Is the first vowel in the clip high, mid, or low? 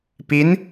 high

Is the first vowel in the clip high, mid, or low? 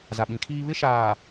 low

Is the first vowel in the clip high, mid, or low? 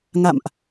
low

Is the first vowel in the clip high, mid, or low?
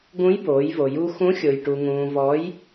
high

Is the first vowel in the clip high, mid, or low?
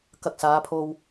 low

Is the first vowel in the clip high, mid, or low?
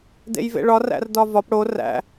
mid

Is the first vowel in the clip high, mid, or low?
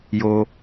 mid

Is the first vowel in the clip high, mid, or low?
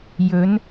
mid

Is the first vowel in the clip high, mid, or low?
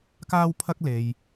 low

